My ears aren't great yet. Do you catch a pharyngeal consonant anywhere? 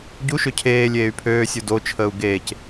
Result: no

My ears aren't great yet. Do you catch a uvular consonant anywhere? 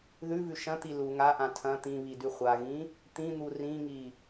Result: yes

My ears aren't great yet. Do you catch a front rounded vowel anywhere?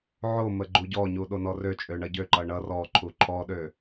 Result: yes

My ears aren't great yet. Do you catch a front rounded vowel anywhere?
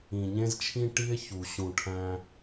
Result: no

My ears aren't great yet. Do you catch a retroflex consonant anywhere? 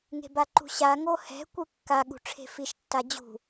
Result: yes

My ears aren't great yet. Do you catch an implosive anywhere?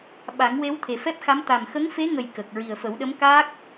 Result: yes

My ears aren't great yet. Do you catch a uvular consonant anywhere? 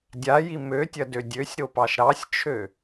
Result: no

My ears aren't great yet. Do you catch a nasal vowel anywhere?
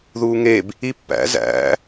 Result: no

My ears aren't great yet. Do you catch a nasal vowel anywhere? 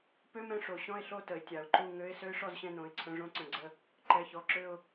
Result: yes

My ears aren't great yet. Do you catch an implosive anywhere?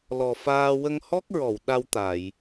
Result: yes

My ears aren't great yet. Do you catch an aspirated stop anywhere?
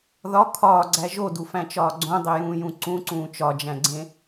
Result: yes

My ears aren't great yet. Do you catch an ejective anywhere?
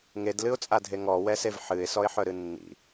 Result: yes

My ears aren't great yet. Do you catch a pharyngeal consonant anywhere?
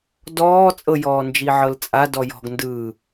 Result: yes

